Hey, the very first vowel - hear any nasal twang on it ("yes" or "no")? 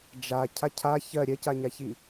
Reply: no